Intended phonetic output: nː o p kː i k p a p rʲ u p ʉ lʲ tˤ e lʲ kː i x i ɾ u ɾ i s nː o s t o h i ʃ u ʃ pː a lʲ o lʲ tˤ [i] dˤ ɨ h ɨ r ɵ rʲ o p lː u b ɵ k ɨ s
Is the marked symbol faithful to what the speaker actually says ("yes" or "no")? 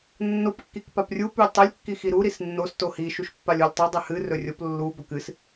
no